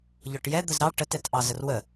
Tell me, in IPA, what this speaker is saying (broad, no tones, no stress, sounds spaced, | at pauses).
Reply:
ʎ ɔ ʈ j ɛ d̪ ə z ɾ ɑ ʈ ə t ɛ t ʔ ɑ z ə r w ə